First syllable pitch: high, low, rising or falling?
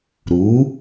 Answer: rising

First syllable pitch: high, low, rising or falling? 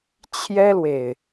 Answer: high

